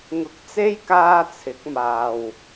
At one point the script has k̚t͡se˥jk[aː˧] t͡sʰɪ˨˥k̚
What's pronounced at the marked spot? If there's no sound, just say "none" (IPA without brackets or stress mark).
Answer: aː˧